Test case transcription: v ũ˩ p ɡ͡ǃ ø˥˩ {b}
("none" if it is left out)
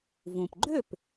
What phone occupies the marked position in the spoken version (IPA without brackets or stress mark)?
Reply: p